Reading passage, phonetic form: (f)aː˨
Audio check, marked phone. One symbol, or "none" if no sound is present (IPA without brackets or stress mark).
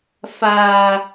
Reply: f